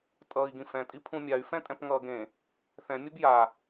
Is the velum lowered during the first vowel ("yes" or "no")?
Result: no